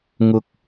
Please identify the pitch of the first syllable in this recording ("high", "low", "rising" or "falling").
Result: high